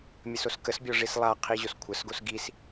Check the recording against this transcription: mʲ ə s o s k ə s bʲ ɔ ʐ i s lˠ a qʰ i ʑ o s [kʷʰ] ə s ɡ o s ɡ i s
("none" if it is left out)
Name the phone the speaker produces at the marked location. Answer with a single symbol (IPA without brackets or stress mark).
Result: kʷʰ